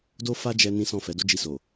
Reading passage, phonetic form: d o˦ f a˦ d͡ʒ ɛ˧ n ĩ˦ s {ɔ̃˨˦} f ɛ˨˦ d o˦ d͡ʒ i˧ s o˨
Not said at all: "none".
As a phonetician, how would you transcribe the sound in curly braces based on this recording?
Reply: ɔ̃˦˨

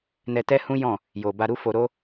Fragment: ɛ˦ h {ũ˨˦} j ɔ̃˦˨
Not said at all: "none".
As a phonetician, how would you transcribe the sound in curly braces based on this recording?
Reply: ũ˦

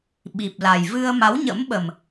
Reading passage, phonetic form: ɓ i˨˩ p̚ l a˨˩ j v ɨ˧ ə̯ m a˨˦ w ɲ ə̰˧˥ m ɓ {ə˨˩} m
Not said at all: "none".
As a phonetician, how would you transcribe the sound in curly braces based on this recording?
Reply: ə˨˩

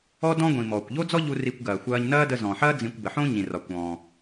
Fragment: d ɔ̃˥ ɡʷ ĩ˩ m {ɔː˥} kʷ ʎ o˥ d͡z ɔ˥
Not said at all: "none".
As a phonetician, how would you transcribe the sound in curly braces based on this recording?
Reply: ɔː˩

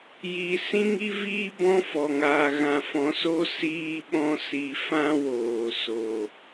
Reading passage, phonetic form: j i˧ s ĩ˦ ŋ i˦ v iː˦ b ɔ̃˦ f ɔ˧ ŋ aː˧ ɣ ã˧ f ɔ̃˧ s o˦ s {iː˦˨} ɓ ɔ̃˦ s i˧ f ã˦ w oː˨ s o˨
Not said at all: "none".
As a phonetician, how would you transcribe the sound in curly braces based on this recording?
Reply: iː˦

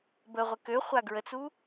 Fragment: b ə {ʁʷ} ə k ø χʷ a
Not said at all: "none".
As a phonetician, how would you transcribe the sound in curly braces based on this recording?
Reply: ʁʷ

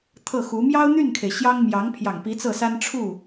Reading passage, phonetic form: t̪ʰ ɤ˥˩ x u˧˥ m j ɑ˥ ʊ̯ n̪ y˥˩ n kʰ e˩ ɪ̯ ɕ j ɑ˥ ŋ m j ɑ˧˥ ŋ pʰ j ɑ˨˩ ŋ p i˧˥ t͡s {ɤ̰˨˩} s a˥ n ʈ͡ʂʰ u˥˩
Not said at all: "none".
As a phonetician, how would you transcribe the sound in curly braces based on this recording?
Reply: ɤ˥˩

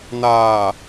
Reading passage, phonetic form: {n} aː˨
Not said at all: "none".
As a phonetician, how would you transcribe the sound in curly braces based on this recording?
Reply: n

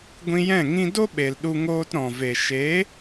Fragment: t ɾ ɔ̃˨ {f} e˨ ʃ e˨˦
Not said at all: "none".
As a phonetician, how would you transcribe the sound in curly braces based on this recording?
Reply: v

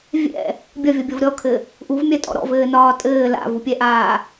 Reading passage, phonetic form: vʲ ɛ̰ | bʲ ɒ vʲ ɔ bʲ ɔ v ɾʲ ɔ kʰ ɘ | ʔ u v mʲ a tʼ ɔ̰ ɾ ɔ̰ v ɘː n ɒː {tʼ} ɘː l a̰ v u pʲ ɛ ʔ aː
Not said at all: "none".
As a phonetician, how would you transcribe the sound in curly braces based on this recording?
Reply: tʼ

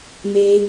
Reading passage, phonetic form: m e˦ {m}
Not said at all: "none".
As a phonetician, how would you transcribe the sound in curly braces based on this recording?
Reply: none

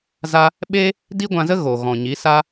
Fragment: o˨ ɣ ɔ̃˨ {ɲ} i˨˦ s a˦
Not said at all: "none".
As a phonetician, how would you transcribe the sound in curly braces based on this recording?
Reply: ɲ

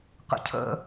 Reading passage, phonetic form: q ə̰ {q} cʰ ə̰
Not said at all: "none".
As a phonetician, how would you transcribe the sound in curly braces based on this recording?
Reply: none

